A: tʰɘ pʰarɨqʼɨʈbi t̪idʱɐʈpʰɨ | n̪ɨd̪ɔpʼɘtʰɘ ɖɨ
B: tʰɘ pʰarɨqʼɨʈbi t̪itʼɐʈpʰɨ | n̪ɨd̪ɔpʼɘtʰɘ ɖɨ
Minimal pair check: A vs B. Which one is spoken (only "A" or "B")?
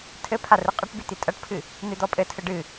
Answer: B